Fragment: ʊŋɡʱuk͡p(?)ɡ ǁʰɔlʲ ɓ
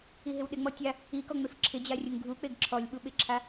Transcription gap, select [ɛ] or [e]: e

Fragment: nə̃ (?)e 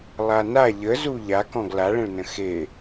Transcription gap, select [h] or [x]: x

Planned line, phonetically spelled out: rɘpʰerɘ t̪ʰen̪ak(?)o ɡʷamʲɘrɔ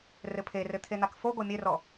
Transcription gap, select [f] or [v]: f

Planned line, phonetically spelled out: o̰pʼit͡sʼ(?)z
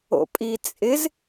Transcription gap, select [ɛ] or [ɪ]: ɪ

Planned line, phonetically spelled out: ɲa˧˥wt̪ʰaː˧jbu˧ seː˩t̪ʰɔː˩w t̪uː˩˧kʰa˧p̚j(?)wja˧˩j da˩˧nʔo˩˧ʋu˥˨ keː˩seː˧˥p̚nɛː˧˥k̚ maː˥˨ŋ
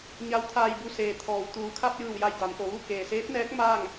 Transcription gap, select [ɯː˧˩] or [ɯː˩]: ɯː˧˩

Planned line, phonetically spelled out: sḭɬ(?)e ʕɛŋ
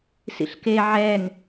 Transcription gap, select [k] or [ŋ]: k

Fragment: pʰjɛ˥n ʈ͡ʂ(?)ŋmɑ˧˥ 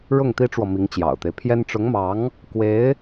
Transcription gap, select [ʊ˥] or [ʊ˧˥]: ʊ˧˥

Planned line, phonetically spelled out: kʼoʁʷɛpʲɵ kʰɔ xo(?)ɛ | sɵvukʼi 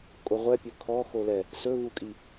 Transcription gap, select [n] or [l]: l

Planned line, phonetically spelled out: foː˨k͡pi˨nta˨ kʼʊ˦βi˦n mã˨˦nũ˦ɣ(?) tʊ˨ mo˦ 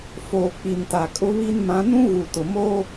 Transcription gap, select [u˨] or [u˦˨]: u˨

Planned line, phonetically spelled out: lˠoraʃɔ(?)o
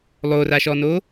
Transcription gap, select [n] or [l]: n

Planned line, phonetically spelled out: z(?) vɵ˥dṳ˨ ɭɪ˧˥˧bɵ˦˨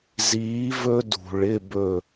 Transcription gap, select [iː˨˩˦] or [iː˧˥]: iː˧˥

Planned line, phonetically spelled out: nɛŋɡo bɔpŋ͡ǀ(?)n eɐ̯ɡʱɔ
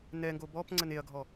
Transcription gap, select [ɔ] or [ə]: ə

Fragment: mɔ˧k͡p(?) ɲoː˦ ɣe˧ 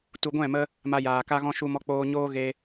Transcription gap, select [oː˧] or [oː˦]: oː˧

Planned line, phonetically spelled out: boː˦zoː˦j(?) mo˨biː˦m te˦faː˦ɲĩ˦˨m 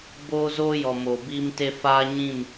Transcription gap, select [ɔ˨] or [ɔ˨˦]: ɔ˨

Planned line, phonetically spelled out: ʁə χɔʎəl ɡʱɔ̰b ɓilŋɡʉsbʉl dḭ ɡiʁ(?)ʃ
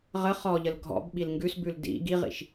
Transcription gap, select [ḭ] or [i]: ḭ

